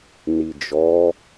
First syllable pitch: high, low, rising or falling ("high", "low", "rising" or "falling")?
low